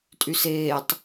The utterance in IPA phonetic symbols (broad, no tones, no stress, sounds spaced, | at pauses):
tʼ y s eː tˤ